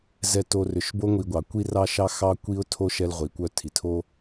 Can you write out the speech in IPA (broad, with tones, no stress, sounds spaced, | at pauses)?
z ɛ˨ t o˨ r ʏ˩ ʃ b o˦ ŋʷ i˨ ɡʷ ɑ˩ kʷ i˥ r ɑ˥ ʃ ɑ˥ x ɑ˥ kʷ i˥ ʊ̯ tʰ o˥ ʃ ɛ˥ l ʁʷ i˨ kʷ œ˥ tʰ i˩ tʰ o˥